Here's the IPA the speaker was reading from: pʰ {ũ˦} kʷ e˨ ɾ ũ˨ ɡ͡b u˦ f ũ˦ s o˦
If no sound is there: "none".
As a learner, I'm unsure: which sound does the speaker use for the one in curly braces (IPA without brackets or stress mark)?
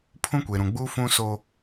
ũ˦